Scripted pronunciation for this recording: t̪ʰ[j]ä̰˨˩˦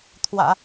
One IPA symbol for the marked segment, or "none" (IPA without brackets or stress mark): w